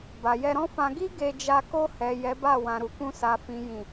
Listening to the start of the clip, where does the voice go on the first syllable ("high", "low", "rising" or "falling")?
low